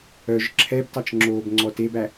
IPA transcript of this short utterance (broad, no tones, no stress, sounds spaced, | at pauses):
œ ʒ ǁʰ ɛ b t ɑ t͡ʃ ŋ͡ǁ oː b ŋ͡ǀ ɔ t e b æ